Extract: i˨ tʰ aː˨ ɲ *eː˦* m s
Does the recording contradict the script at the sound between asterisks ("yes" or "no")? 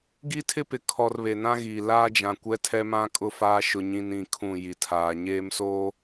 no